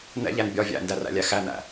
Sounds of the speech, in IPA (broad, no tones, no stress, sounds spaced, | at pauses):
n ɛ̰ ʎ æ n bʲ ɒ vʲ æ̰ n d æ r æ̰ lʲ æ x æ n æ̰